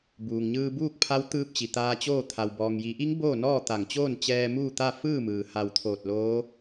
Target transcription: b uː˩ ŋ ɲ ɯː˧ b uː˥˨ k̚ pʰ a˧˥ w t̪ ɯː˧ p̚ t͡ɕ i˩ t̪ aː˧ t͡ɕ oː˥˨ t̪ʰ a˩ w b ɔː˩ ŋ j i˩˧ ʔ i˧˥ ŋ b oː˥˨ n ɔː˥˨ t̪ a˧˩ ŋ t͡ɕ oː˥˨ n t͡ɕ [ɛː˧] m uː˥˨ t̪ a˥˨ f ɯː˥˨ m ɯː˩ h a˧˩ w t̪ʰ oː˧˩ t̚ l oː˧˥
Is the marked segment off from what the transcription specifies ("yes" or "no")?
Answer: no